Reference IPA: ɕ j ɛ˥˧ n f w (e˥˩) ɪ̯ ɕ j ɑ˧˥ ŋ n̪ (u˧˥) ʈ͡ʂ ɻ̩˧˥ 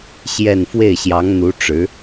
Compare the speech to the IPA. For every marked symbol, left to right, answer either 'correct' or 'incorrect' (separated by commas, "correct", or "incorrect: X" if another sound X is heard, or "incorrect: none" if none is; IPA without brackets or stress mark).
correct, correct